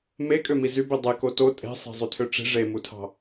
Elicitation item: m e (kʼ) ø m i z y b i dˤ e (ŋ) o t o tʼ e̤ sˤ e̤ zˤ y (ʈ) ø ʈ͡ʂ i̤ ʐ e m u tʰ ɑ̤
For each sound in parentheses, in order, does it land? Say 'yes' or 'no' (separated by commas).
yes, no, no